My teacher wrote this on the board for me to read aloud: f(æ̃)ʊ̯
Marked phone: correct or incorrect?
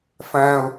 correct